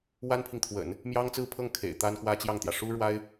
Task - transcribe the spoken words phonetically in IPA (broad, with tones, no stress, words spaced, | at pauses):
wa˥npʰi˨ŋt̪ʰwə̰˨˩˦n | mjɑ˥ŋt͡sɹ̩˥˧pʰɤ˥˩ŋ kʰḛ˨˩ɪ̯ t̪a˥nkwä˥t͡ɕjɑ˥˩ŋt̪jä˩ ʂu˥ɻwa˥ɪ̯